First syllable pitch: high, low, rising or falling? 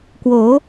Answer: rising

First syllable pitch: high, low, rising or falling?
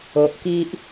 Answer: low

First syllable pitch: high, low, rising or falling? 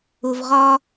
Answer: low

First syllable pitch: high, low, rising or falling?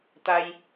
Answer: high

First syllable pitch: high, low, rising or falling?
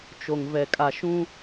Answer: low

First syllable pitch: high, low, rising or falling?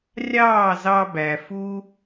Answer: falling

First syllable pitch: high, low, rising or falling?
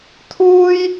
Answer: high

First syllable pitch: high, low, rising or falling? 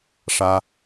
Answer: high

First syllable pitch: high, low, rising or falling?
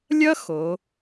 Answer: high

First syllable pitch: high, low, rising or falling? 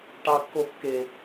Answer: high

